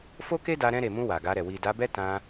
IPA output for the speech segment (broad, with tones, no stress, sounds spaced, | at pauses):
f o˦ k e˦ d a˧ ɾ ɛ̃˧ ɾ e˨ m ũ˧ w a˨ ɡ a˧ ɾ ɛ˨ w i˨ d a˨˦ b ɛ˦ t ã˧